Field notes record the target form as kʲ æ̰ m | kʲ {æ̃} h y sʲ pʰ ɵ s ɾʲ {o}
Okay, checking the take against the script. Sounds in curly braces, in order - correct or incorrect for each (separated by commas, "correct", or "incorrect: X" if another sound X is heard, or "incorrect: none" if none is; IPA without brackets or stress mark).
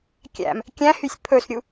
correct, incorrect: u